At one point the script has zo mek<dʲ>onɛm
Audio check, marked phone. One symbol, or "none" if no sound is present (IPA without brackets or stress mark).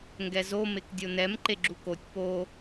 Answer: dʲ